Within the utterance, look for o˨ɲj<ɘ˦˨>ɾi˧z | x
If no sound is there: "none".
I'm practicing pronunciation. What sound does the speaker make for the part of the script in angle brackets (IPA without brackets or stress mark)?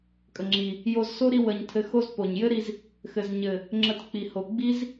ɘ˦